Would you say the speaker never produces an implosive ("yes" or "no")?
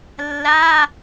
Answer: yes